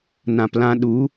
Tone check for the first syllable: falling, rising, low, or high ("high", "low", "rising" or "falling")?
low